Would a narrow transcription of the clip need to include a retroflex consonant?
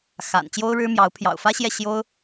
yes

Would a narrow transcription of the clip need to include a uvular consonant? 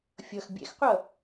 yes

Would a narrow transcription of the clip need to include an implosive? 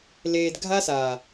no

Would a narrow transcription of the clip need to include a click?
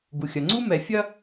yes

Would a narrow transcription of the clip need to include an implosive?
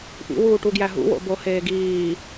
no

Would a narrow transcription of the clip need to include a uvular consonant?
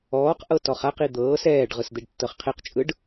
yes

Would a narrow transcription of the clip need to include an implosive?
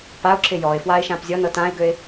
no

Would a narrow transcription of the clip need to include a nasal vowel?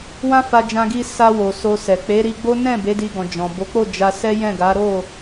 yes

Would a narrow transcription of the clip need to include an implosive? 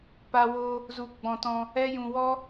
no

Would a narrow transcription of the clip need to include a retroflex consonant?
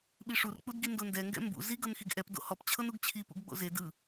yes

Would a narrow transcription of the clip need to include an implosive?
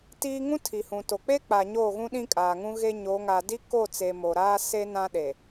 yes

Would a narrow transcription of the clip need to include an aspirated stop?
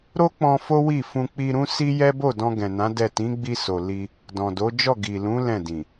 no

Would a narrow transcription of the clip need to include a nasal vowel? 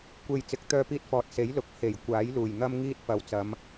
no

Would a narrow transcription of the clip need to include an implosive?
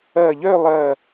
no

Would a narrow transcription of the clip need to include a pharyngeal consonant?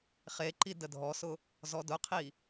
no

